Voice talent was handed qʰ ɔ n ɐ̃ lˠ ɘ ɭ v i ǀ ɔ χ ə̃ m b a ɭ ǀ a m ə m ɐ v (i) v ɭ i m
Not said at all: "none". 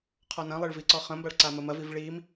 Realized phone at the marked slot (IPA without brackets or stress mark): i